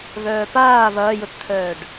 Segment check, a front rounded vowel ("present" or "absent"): present